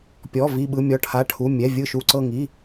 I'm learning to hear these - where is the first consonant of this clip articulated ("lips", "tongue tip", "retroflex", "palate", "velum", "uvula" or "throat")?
lips